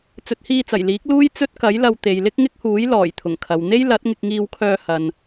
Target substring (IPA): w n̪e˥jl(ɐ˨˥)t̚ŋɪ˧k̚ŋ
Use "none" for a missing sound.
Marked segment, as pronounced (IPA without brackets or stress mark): ɐ˨˥